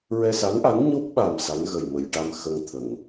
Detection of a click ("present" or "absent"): absent